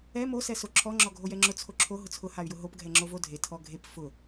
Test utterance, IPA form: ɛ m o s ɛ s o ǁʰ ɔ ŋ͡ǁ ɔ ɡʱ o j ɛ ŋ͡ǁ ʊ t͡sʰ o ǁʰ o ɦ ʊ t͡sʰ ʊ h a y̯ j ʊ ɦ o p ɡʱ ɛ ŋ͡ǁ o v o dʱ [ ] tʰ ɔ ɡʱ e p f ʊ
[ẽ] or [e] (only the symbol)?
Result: e